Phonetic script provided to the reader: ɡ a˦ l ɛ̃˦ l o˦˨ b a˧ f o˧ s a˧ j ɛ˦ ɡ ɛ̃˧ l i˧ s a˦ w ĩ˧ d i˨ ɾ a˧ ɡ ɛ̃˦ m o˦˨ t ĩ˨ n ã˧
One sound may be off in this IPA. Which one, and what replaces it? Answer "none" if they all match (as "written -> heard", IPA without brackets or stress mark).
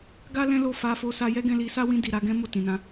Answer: b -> f